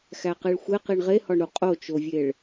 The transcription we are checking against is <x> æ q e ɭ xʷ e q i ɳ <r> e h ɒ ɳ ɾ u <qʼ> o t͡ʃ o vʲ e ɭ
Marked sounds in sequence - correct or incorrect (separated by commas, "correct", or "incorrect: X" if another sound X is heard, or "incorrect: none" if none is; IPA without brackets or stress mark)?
correct, incorrect: ʁ, correct